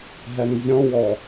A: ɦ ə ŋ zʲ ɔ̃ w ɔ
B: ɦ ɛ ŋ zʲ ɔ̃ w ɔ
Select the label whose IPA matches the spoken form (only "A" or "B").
B